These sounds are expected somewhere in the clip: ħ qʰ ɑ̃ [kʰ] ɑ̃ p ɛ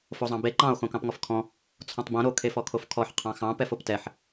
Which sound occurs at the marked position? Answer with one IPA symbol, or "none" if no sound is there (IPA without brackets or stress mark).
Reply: x